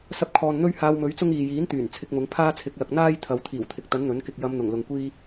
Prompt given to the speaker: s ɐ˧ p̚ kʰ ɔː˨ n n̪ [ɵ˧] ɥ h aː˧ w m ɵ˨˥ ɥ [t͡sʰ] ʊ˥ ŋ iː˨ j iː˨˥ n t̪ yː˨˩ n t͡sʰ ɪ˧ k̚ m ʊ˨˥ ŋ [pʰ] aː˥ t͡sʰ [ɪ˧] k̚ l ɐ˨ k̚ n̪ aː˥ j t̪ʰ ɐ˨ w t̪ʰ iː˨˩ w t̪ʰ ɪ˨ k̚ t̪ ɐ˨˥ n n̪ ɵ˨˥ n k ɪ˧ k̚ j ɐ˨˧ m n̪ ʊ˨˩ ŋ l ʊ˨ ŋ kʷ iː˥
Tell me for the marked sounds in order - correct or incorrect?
incorrect: ɵ˥, incorrect: t͡s, correct, incorrect: ɪ˨˥

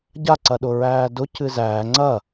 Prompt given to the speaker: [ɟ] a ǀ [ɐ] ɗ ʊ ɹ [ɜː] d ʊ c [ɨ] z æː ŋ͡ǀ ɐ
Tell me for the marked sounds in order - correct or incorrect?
correct, correct, incorrect: æː, correct

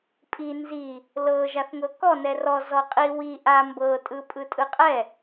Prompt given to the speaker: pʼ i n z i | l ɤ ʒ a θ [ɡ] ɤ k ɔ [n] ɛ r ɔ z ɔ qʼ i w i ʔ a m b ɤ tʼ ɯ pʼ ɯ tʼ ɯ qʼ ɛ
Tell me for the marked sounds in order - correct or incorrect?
incorrect: ŋ, correct

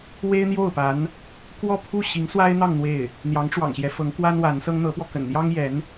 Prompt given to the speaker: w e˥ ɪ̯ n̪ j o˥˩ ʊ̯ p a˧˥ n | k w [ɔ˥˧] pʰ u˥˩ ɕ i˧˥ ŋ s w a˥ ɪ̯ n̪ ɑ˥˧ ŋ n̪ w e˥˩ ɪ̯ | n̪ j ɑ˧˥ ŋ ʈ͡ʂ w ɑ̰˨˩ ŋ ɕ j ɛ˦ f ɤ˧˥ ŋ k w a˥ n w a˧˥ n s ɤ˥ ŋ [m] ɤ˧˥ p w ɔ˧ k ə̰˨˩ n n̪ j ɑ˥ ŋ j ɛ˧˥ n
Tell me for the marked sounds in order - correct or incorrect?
correct, incorrect: n̪

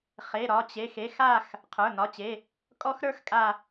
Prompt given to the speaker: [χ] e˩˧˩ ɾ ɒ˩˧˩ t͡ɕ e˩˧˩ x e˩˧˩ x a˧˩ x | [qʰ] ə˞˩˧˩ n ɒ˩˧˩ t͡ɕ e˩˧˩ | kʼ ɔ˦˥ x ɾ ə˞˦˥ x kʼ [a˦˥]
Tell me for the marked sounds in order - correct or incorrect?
correct, correct, incorrect: a˧˩

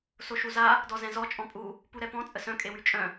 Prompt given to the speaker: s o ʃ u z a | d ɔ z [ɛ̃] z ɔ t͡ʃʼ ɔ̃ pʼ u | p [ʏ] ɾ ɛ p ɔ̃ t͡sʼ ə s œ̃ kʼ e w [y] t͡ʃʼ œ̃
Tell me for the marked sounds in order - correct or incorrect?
correct, incorrect: u, correct

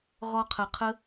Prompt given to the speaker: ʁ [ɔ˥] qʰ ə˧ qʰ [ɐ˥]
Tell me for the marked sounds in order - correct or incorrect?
correct, incorrect: ə˥

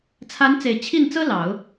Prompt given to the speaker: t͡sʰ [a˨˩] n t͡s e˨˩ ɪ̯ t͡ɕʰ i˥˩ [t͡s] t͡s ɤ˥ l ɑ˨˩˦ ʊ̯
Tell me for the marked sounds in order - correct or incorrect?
incorrect: a˧˥, incorrect: n

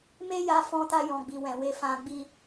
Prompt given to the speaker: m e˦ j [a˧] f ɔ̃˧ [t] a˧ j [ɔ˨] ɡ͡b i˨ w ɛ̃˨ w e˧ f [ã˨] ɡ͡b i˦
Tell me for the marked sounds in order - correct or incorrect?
correct, correct, incorrect: ɔ̃˨, incorrect: ã˧

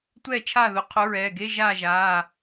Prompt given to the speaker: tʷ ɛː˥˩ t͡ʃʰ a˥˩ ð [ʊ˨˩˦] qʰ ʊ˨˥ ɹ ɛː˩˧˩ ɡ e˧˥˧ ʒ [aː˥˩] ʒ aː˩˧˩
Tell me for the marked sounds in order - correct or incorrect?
correct, correct

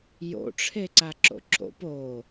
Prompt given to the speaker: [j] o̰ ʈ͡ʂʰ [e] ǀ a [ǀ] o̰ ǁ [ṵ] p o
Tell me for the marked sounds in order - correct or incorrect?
correct, correct, incorrect: ǁ, incorrect: o̰

